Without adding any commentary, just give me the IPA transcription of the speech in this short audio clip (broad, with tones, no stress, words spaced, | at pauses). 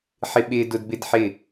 ħɪ˦ɓɪː˦dʊ˦d bɪ˦dħɪ˦˨